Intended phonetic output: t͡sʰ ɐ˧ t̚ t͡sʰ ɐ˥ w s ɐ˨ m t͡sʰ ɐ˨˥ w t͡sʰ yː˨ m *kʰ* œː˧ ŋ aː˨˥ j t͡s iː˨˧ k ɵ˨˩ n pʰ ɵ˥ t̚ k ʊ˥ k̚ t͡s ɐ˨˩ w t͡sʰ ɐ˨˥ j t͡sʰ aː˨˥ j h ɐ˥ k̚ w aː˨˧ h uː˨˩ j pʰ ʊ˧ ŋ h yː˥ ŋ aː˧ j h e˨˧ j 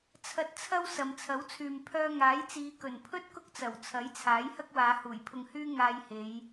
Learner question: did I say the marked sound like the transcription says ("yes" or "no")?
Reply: no